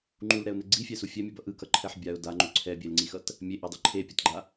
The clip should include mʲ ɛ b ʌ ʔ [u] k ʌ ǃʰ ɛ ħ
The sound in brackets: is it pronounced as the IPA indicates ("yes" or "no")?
no